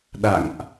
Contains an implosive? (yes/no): yes